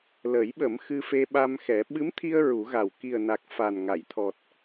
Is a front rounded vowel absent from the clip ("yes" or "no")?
yes